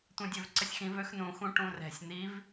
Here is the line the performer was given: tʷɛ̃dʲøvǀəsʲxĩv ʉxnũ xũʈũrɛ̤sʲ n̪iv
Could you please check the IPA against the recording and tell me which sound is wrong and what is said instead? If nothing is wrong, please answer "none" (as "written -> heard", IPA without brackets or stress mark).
ʉ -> ø